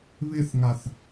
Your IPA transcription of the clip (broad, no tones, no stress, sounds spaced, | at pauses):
β ɪ θ ŋ a θ